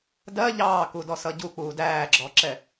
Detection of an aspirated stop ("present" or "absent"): absent